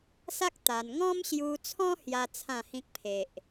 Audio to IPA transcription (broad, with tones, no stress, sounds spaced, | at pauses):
s a˦ k̚ t̪ a˧ n ŋ ɔ̃˦ m ɕ j u˧ t͡sʰ ɔ̃˦ h j a˦ t͡sʰ ã˥˧ h ĩ˦ k̚ pʰ e˨ ʔ